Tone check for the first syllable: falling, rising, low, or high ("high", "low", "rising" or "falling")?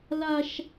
high